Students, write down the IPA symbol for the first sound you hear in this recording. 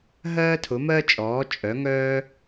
ɦ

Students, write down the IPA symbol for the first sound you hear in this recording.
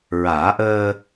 ɹ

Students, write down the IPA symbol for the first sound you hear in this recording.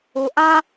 u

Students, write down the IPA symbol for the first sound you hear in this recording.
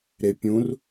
ɾ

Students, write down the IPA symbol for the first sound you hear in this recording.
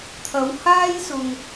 t̪ʰ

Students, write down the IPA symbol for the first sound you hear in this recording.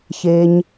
ç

